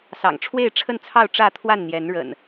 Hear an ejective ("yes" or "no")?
no